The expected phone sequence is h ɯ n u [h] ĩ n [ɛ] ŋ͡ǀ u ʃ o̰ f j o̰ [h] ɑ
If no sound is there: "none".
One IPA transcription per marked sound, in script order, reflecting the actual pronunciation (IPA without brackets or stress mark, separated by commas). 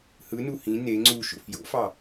h, e, f